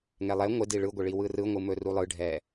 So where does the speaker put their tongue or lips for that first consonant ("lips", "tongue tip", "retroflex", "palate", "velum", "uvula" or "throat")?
velum